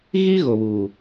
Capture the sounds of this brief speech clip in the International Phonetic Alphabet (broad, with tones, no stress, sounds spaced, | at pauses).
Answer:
ɣ i˦ ɣ o˨ β uː˨